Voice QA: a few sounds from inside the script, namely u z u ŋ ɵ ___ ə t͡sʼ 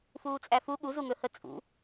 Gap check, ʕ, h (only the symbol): h